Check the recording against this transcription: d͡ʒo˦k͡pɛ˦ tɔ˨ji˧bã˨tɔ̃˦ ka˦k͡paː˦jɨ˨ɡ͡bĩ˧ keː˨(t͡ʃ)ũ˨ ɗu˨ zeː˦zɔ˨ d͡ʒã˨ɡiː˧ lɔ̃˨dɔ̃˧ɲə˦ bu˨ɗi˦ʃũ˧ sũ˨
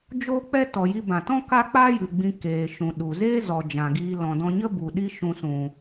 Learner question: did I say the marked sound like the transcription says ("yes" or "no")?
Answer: no